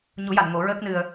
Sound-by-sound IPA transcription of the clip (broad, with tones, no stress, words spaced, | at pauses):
ɲu˨˩˦ja˨˩˨n ŋo˨˩˦ɹəː˦˥k̚nɨ˧ə̯